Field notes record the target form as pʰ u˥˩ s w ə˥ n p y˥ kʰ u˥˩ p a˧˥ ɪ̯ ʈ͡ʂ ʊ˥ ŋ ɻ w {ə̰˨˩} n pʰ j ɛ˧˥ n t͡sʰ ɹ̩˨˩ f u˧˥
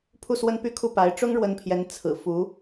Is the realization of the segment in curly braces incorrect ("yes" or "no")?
yes